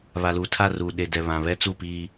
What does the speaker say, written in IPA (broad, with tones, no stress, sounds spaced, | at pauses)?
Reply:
β a˨ l uː˨ tʰ a˦˨ r uː˨ ɗ e˨ d ɛ˨ β ã˨ β ɛ˦ t͡s u˦˨ p iː˦